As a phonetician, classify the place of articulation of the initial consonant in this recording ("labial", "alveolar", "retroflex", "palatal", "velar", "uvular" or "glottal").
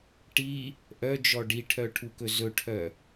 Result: retroflex